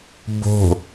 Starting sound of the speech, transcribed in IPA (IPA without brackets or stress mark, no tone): b